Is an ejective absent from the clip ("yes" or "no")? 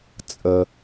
no